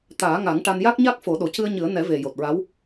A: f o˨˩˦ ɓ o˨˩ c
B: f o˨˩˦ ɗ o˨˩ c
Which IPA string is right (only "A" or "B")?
B